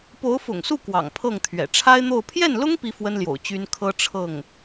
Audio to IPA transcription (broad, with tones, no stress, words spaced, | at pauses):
po˧˥ʊ̯fʊ̰˨˩ŋsu˥˩ kwɑ̰˨˩ŋpʰɤ˥˩ŋt̪ʰɥɛ̰˨˩ ʈ͡ʂʰa˥ɪ̯n̪o˥˧ʊ̯ pʰjɛ˥˩nlʊ˥ŋ pi˥fwə˥nljo̰˨˩ʊ̯ t͡ɕy˥n kʰɤ˥ ʈ͡ʂʰɤ˥˩ŋ